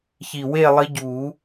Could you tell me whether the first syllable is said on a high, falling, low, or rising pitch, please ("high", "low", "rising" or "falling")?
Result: low